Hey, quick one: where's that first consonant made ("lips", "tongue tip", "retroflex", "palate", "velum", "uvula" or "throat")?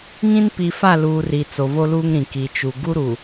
velum